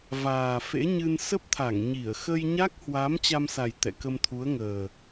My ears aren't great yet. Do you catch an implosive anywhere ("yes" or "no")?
no